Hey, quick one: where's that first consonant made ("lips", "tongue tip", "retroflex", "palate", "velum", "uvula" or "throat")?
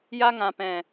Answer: palate